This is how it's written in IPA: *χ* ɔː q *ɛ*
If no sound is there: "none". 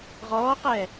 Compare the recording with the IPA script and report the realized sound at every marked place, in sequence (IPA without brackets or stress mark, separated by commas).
ʁ, ɛ